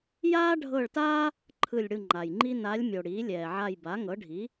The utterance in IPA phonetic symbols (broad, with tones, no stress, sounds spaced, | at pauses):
j aː˥ ɖʱ ɤ˦˨ ɭ t aː˥ | ǃʰ ɯ˦˨ lʲ ɽ ɯ˦˨ ŋ͡ǃ a˨ j ŋ͡ǃ i˥ n a˧˥ lʲ mʲ o˨ ɽ iː˩˥ lʲ ɛː˨ ʕ a˦˨ j b a˩˥ ŋ ɤ˩˥ ɖʱ i˩˥